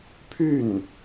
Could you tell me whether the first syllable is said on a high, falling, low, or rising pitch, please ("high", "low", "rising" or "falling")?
falling